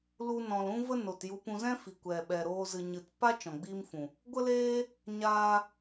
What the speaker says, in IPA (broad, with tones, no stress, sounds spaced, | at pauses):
l u˧ n ɔ̃˨ l ũ˦ v ə˦ n o˨ t j u˧ p ũ˧ z ɛ̃˦ f i˨ kʷ ɛ˨ ɓ ɛ˨ ɾ oː˧ z ɨ˨ ɲ ɨ˨ t p a˦ t͡ʃ ɔ̃˨ ɡ͡b iː˦ m f ũ˨ | ɡʷ ə˦ l eː˦ | ɲ aː˧